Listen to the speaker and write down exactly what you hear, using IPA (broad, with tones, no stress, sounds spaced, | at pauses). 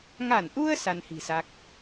ŋ a˧˩ n ʔ u˧ ə̯ s a˧ n h i̤˨˩ s a˦˥ k̚